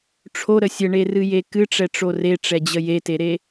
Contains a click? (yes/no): no